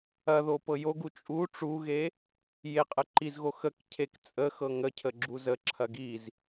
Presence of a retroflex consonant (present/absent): present